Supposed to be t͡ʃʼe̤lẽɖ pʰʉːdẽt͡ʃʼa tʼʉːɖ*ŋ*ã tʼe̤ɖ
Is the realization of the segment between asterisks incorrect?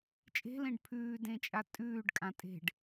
yes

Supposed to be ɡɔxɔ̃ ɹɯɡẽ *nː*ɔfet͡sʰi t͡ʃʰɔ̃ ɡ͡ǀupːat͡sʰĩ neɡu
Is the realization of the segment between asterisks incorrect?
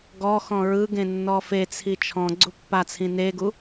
no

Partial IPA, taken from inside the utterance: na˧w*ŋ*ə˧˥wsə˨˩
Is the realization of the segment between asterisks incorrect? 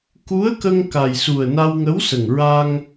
no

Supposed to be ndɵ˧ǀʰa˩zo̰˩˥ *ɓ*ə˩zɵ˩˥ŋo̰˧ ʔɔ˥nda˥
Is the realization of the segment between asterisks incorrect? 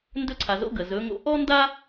yes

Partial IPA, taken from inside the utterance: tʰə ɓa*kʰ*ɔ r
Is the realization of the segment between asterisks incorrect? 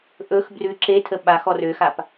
yes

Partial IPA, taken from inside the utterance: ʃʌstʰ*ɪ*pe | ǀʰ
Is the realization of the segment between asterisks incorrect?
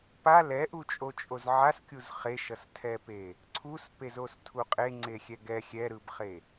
yes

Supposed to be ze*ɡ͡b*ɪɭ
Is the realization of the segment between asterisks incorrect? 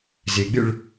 no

